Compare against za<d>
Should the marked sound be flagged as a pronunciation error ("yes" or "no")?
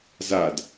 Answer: no